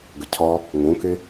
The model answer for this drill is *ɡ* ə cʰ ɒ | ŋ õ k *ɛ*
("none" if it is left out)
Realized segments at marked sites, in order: ɡ, e

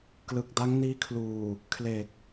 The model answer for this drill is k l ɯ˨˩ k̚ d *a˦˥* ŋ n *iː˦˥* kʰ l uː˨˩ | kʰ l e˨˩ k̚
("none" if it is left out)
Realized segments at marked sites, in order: a˦˥, iː˦˥

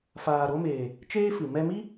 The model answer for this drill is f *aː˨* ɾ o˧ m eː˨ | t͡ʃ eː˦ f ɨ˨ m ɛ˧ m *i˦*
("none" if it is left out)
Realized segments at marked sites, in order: aː˨, i˦

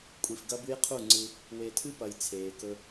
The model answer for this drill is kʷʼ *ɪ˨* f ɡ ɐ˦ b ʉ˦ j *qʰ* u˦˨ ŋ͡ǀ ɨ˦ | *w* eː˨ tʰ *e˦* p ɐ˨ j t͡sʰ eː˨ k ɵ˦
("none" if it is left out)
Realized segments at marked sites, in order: i˨, qʰ, w, ɨ˦

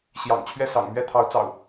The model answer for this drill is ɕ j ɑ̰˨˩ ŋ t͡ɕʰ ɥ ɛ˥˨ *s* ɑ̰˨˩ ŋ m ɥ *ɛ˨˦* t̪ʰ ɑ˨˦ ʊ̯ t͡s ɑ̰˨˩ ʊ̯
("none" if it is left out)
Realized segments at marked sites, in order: s, ɛ˥˨

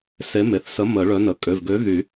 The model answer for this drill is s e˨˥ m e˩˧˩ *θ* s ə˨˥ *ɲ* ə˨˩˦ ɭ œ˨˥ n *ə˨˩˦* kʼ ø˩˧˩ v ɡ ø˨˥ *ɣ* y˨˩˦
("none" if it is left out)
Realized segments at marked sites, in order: θ, m, ə˩˧˩, ɣ

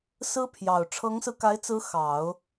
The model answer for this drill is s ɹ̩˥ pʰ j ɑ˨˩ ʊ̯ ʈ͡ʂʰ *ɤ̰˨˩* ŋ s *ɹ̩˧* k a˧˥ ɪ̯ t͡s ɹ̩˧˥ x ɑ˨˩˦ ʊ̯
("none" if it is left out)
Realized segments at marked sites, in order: ɤ˧˥, ɹ̩˧

